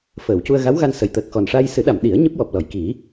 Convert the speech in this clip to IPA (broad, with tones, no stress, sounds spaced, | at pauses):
f əː˨˩˨ w c u˧ ə̯ ɣ a˧˥ w ɣ a˧ n s ə˨˩˨ j t̪ əː˨˩ k̚ x ɔ˨˩ n ʂ a˧ j s ɨ˨˩˦ ɗ a˨˩˨ m ɗ i˨˩˦ ə̯ ɲ ɨ˦˥ p̚ w ɔ˨˩ p̚ l ɔ˨˩˨ j k i˨˩˦